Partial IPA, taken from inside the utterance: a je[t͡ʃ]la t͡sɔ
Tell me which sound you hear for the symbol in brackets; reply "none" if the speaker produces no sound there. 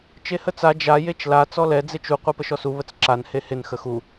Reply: t͡ʃ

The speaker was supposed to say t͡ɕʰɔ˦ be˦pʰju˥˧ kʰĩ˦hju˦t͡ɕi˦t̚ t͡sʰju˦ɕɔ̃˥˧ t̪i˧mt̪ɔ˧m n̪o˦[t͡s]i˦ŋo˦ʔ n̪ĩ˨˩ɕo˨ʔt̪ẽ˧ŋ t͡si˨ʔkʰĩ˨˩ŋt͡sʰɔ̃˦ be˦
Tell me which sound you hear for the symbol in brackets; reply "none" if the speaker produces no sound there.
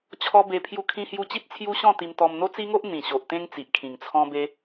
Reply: t͡s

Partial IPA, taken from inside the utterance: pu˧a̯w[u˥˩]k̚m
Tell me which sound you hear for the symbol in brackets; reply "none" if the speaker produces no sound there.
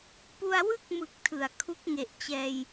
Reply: ɯ˥˩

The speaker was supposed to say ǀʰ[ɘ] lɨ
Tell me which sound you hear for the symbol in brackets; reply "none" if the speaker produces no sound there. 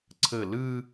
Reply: ɘ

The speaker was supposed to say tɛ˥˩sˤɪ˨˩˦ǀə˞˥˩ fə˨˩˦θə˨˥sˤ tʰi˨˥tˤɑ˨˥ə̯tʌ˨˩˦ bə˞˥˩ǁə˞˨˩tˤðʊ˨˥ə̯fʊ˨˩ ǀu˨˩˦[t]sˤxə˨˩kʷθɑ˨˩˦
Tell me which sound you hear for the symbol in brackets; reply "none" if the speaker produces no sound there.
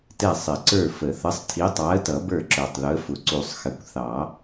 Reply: none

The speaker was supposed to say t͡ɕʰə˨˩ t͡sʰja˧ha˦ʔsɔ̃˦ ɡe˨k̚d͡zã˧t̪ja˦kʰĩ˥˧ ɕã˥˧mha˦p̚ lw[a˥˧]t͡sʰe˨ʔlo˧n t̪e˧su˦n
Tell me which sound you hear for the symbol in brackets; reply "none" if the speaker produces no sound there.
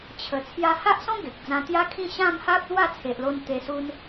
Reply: a˥˧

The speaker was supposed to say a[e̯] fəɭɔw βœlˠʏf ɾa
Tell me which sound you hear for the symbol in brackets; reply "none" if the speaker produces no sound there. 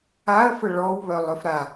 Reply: ɐ̯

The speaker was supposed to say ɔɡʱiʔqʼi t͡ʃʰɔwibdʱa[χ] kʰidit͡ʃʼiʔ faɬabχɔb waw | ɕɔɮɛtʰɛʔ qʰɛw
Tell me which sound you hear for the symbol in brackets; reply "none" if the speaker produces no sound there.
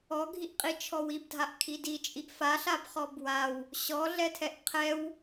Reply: ʔ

